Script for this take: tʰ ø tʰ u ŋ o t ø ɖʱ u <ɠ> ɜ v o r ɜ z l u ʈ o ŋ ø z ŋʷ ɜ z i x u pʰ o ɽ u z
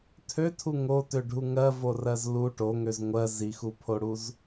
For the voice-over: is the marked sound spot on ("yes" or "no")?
no